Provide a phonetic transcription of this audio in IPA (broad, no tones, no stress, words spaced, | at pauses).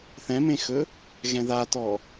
θɛ̃mẽxɵ | ɣɛ̃ðatɔ